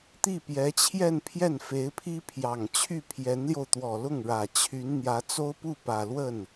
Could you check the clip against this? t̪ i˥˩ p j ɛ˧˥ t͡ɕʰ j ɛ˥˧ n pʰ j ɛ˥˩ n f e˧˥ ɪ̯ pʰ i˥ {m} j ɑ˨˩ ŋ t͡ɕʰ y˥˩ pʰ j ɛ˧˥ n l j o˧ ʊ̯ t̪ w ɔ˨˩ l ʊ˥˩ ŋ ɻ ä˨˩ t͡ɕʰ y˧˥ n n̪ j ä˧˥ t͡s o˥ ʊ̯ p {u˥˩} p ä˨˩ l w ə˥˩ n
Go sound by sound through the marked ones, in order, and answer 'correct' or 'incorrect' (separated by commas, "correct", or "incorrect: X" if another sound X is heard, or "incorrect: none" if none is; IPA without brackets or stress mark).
incorrect: pʰ, correct